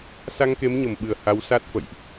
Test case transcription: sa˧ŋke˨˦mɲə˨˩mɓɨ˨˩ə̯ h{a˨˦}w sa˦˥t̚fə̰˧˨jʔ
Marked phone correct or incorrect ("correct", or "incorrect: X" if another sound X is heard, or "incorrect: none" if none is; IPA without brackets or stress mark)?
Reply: correct